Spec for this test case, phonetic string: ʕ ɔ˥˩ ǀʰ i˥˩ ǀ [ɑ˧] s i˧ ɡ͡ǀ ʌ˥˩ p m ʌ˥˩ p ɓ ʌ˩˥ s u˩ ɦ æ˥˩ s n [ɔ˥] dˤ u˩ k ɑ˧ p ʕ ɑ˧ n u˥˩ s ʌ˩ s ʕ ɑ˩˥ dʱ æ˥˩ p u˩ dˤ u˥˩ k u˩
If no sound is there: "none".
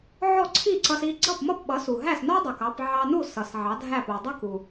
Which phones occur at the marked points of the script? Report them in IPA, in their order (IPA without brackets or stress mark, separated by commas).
ʌ˧, ɔ˥